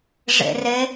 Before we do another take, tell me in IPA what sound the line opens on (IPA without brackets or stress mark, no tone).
ʐ